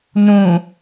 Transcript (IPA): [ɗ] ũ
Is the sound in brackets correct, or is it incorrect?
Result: incorrect